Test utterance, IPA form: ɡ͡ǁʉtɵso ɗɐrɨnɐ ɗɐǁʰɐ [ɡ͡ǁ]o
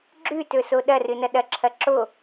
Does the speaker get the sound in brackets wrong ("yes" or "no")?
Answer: yes